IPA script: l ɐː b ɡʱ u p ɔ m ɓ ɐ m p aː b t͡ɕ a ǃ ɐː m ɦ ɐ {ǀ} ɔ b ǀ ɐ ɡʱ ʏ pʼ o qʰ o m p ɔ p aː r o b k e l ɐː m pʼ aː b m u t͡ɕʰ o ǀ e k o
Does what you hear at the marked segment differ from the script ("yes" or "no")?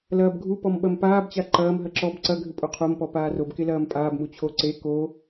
yes